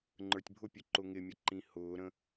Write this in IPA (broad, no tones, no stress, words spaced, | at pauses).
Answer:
ŋ͡ǃə˞tʲbʱʊpʲu ǃʊŋɪmʲʌ ǃĩhʊːɾə̃